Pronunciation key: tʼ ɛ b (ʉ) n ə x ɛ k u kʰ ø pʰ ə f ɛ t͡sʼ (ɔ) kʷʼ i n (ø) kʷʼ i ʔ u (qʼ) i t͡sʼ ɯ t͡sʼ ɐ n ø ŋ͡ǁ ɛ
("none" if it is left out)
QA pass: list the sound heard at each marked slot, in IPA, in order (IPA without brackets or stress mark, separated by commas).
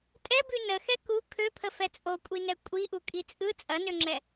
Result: ʉ, o, ɛ, kʼ